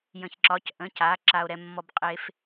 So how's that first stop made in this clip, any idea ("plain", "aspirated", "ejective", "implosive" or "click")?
click